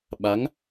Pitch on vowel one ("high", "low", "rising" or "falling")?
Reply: rising